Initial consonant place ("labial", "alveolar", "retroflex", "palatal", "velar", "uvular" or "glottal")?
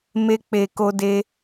labial